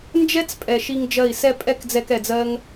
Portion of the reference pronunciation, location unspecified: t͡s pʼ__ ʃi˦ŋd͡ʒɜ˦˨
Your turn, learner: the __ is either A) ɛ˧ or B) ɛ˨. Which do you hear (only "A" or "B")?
B